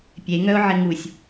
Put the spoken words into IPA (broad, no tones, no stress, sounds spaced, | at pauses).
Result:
pʲ e ŋ œ ʊ̯ ʕ ɪ ŋ u sʲ